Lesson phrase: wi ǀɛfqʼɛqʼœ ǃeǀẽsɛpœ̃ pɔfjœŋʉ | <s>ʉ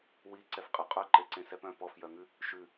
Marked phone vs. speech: incorrect: ʃ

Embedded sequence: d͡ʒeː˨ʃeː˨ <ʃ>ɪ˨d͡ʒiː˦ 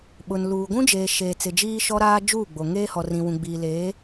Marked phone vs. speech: incorrect: t͡s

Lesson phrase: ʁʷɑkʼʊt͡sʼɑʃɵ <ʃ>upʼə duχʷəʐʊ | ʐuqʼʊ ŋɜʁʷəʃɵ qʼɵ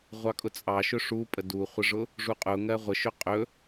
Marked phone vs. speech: incorrect: ʂ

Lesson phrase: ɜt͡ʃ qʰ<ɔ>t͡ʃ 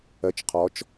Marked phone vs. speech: correct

